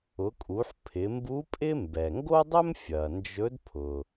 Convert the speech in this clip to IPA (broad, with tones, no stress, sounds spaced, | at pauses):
ʊ˩˧ kʼ u˩˧ ħ pʰ ɪ˩˧ m b u˧˥ pʼ ɪ˥ m b ɛ˩ ŋ ɡ o˥ dˤ ɵ˥ m fʲ ɐ˩ n d͡ʒ ɵ˧˥ d pʰ ʊ˩